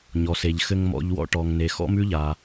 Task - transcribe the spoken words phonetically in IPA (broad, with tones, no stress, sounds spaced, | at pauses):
ɲ ɔ˩ s e˩ ʎ x ɘ˧ ŋ m ɔ̰˧ ʎ w ɔ̰˧ ʈ ɔ˩ ŋ n e˩ x ɔ̰˥ m ʉ˥ ʎ a˩